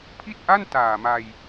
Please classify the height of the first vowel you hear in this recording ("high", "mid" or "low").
high